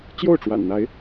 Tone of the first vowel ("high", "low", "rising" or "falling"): falling